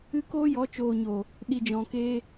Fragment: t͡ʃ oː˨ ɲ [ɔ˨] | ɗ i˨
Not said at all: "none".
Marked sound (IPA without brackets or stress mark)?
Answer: o˨